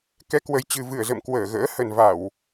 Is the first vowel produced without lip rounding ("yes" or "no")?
yes